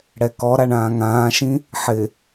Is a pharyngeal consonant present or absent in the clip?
present